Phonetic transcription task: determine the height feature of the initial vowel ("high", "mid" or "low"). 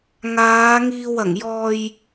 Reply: low